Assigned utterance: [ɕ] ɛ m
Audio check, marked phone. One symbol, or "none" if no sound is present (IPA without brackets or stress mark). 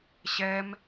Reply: ɕ